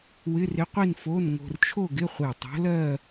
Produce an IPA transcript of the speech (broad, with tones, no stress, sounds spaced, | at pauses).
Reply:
w ɪ˧˥˧ r ɪ˧˥ qʷ i˥˧ n f o˧˥˧ n ŋ o̤˧ r t͡ʃʰ o˥˧ ɡ ɪ˧˥˧ χʷ e˧˩ tˤ o̤˧˥ l ɜ˥˧